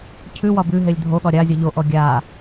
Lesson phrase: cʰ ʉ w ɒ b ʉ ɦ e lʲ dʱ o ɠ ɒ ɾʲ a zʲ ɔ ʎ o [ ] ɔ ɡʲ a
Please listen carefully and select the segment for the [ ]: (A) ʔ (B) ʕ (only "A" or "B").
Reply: A